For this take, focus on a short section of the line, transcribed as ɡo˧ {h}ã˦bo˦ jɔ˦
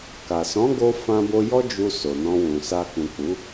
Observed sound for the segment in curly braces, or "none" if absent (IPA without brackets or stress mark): f